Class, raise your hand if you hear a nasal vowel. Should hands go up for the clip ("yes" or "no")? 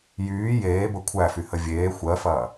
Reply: no